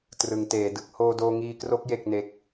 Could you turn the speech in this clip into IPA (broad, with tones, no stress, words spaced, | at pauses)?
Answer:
trɯ˩˦ŋteː˩˦dɯ˦˥k̚ hoː˧doː˧ŋiː˧kro˦˥k̚ je˥˩k̚ne˦˥k̚